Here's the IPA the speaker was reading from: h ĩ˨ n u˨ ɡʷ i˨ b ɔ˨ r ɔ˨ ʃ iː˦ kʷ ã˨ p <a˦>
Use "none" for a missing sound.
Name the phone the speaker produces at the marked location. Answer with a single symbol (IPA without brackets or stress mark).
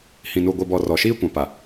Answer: a˨